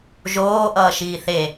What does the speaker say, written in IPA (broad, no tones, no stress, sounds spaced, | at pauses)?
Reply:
ʒ oː ʔ ʌː ʃ iː θ e